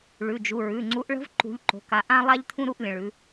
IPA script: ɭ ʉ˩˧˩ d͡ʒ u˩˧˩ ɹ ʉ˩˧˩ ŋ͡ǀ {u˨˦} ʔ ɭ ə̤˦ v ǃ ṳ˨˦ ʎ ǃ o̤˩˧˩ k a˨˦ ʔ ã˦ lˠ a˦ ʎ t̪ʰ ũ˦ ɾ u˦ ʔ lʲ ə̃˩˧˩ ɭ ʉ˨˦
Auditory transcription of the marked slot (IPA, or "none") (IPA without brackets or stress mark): u˨˦